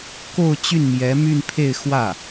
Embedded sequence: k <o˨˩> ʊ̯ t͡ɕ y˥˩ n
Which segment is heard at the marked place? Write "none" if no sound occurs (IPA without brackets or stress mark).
o˥˧